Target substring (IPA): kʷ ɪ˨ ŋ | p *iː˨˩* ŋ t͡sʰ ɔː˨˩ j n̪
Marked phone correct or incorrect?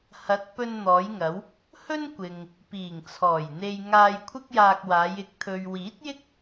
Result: correct